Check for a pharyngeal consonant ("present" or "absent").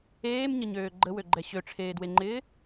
absent